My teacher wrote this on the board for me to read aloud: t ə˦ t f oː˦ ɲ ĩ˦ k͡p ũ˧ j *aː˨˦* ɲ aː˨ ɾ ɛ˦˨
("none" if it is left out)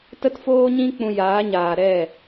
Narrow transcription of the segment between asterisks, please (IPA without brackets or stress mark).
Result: aː˨˦